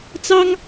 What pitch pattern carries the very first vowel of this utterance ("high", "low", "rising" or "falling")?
high